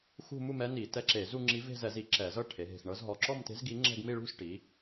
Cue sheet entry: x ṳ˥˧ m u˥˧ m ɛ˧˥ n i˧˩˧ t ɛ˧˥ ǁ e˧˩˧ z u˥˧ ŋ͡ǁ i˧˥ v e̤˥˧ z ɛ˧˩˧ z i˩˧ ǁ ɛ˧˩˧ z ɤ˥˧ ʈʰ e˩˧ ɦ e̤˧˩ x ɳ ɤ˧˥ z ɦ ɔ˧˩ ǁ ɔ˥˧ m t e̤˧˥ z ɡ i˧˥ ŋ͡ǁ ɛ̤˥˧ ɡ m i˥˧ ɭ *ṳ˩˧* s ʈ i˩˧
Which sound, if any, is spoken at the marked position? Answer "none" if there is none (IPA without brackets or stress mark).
ṳ˥˧